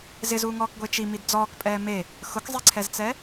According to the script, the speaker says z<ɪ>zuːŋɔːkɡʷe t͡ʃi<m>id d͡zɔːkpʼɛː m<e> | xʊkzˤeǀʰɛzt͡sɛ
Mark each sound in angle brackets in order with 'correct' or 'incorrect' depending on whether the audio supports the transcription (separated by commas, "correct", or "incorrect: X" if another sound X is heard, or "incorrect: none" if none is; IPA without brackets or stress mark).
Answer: correct, correct, correct